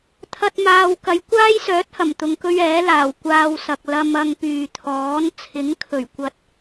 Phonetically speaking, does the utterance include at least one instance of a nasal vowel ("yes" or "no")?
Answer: no